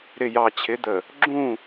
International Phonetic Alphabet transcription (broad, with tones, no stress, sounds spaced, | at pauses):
ɾ ɪ˨ j ɑ˨ t͡ɕʰ ɪ˨˦ d̪ ə˨ | ɡ͡ǁ ũ˦˨